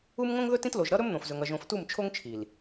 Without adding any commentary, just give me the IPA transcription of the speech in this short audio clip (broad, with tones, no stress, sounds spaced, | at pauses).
u˦ m ŋ õ˦ ŋ ð ɵ˦ t ĩ˦ t l o˨ ʒ ɾ ʌ˦ ɾ ɵ˦ m n̪ õ˨ f z ɵ˨ ŋ ʌ˨ ʒ õ˨ f t u˦˨ m t͡ʃʰ o˦ ŋ t͡ʃʰ i˨ l